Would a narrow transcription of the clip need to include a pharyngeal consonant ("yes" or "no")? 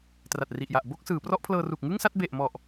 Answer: no